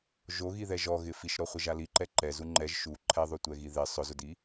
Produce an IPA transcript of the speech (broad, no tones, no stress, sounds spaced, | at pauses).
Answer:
ʒ o ɣ i ð ɛ ʒ ɔ ɣ ɪ f i ʃ ɾ ɔ χʷ ɪ ʒ a l i ǃ ɛ ǃ ɛ z u ŋ͡ǃ ɛ ʒ ʃ u ǃʰ ɛ ðˤ o tʷ ɛ ɣ i ð ɪ sˤ ʊ z ʊ d i